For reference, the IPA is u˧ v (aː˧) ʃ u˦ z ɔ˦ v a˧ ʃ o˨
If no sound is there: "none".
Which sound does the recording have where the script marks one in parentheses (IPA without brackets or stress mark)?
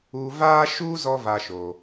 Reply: aː˦